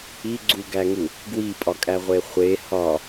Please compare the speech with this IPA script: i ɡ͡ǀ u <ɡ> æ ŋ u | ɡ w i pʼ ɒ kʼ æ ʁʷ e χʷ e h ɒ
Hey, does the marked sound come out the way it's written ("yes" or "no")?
yes